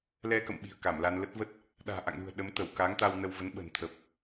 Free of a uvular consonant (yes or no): yes